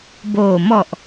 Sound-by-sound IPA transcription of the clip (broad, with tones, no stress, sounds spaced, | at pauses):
b oː˨˩ m ɔ˨˩ ʔ